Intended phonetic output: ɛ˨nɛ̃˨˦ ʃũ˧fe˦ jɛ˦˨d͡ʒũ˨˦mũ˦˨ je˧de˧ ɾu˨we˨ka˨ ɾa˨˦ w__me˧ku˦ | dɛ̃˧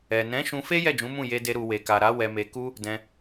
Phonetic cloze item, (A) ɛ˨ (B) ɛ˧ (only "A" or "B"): B